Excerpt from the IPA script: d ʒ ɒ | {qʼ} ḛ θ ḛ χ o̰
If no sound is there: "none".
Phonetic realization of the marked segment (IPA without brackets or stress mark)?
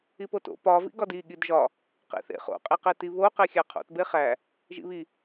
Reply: q